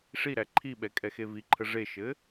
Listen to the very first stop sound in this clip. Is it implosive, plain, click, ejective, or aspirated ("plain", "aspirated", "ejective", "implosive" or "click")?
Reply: click